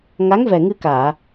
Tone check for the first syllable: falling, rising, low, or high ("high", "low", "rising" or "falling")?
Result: rising